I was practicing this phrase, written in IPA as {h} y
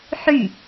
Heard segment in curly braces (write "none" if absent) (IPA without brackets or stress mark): ħ